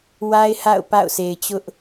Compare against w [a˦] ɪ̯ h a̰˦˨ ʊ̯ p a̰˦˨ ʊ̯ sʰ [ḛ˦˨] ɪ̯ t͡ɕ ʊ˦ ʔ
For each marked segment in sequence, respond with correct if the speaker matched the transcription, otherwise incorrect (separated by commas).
correct, incorrect